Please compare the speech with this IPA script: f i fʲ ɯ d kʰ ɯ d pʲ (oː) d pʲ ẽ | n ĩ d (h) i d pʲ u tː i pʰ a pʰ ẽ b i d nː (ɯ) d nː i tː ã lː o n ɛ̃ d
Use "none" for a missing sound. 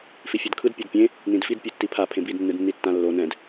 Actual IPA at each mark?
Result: o, f, ɯ

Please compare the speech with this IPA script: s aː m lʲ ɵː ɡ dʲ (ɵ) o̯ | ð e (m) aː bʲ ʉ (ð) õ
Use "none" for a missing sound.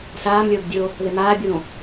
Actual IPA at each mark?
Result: ɵ, m, ð

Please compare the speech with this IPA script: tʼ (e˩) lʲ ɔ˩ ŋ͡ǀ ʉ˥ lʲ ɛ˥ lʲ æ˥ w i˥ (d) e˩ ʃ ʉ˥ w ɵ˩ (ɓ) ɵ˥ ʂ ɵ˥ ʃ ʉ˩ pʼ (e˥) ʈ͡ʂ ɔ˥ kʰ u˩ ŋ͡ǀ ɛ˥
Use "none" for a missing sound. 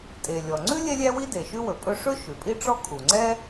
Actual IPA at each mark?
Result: e˩, d, pʼ, i˥

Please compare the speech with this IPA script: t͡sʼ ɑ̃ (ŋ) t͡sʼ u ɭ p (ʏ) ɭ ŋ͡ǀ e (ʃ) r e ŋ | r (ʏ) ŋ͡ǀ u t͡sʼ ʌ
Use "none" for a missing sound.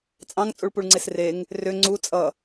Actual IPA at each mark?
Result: ŋ, u, s, ʏ

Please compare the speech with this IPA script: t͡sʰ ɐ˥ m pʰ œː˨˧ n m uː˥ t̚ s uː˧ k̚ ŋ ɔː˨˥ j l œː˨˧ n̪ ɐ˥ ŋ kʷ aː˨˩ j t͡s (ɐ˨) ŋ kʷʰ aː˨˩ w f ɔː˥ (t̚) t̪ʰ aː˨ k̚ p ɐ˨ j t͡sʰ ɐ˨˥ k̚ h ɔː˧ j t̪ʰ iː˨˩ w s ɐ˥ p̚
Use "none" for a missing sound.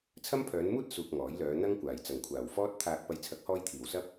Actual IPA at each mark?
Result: ɐ˨˩, t̚

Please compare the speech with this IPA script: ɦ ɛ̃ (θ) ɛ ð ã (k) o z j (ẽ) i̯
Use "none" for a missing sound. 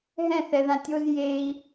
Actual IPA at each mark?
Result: θ, tʲ, e

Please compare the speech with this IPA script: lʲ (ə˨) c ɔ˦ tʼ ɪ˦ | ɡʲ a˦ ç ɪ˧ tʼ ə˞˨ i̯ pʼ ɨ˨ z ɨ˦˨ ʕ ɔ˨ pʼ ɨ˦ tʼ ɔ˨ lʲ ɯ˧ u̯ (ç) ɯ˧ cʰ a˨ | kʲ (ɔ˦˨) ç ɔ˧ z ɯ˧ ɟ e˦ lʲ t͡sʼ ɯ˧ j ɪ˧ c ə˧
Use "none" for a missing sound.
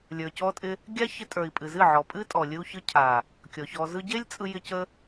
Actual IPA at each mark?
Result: ə˞˨, ç, ɔ˨

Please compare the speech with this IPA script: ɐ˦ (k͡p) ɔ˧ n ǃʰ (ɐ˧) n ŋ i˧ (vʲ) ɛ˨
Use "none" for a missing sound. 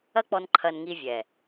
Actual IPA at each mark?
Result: k͡p, ɐ˧, vʲ

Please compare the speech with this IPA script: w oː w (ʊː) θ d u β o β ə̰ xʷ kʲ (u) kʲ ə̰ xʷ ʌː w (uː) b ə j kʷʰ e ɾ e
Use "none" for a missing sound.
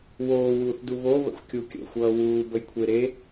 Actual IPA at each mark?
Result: uː, u, uː

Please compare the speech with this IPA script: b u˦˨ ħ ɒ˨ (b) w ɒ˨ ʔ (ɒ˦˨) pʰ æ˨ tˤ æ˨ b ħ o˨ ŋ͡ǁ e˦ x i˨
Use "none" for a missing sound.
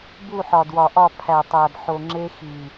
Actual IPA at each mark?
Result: d, ɒ˦˨

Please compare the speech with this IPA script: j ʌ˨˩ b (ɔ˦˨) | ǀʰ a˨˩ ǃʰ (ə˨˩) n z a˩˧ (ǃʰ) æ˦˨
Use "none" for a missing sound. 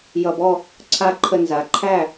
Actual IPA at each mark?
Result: ɔ˦˨, ə˨˩, ǃʰ

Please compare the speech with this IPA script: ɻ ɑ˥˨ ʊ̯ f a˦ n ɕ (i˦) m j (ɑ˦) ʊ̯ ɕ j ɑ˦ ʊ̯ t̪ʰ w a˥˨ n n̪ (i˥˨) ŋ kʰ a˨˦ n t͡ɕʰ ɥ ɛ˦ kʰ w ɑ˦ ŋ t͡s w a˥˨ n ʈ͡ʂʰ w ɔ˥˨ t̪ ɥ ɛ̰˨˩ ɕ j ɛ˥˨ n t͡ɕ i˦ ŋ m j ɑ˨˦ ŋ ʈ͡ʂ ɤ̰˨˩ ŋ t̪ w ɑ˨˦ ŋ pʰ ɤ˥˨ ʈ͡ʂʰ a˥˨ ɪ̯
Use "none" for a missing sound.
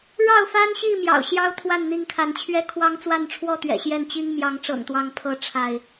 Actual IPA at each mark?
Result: i˥˨, ɑ̰˨˩, i˥˨

